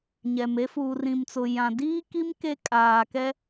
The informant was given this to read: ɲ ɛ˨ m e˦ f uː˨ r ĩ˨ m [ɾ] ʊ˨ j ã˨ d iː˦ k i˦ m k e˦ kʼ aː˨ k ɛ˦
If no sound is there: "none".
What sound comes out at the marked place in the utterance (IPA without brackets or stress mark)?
t͡s